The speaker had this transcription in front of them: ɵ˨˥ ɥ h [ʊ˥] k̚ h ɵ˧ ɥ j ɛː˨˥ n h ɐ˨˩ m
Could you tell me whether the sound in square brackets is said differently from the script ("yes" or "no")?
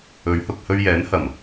yes